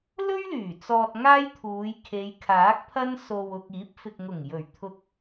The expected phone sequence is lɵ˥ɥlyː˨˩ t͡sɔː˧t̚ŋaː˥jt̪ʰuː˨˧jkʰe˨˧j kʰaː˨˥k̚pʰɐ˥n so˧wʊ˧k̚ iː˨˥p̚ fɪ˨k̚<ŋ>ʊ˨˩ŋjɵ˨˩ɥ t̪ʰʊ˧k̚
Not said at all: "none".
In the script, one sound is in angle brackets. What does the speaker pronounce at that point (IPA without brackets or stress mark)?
ŋ